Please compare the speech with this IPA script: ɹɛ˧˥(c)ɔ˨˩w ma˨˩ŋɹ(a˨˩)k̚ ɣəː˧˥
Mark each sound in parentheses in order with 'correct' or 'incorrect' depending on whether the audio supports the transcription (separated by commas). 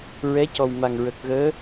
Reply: correct, incorrect